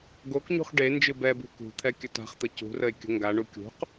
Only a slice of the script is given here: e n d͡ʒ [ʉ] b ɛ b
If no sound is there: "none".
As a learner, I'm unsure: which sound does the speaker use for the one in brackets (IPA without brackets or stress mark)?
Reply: ɨ